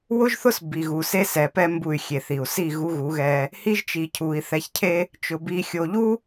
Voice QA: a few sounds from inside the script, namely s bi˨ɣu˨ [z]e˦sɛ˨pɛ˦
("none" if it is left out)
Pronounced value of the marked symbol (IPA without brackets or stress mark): s